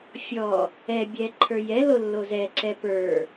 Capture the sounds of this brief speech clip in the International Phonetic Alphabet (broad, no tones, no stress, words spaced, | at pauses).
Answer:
fʲɔ | ɛbʲɛ ǃʰə˞jɛlo lːozɛǀɛ pə˞